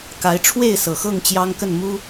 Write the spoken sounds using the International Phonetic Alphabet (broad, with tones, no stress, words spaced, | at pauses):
ka˨˦ɪ̯ʈ͡ʂʰwe˥˨ɪ̯sɤ˨˩xɤ˥˨ŋ t͡ɕjɑ˦ŋkə˥˨n mu˦